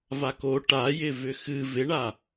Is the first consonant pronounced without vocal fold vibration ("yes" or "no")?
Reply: no